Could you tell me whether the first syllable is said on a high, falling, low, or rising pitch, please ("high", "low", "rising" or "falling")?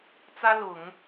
high